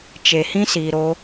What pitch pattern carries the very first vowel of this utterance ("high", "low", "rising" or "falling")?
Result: low